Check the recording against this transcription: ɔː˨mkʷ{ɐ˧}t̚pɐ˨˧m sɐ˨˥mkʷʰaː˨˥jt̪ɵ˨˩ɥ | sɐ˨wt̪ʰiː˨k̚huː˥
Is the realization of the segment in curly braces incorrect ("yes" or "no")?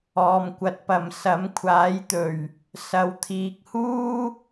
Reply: yes